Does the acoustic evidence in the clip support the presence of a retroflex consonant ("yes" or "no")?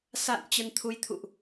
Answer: no